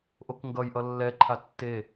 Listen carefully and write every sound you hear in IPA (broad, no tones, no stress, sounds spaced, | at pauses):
ʔ o k ŋ ɡ ʌ j ʔ ʌ lː ɛ ǃʰ a tː e